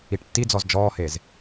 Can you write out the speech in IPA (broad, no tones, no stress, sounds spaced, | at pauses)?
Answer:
i ʈ tː i d͡z ɔ z d͡ʒ ɔː h e z